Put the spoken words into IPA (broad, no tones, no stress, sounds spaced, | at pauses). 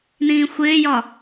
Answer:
n ĩː xʷ ɪː j ɒ